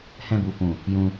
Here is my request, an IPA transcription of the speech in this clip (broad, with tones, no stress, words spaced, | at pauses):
hɛ̃˧bu˨fũ˨ | jũ˧